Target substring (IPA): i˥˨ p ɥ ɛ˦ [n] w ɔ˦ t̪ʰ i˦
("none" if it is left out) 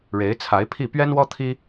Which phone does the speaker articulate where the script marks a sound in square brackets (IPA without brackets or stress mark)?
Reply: n